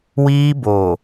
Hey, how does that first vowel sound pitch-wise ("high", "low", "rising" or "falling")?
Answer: high